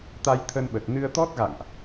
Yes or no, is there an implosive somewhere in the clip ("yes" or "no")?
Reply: yes